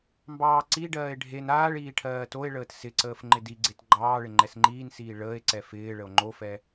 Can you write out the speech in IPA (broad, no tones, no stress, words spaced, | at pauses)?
mbɑːǀiɖɜːe̯ ɖʱen aːɭiː ʈʰɜːtoe̯ɭəːt sɪǀəːf ŋ͡ǃɪdiɡ͡ǀet ɡ͡ǃɑːɭɪ ŋ͡ǃɛsŋ͡ǃiːnsiː ɭəːe̯ǀɛ fɪː ɭəo̯ŋ͡ǃofɛ